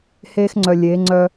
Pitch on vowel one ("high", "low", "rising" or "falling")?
high